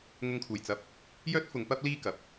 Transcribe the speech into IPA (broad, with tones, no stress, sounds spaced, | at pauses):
ŋ ʊ˨˧ ŋ kʰ uː˨˩ j t͡s ɐ˨ p̚ | j œː˥ t̚ f ʊ˨˧ ŋ p ɐ˥ p̚ l iː˥ k ɐ˨ p̚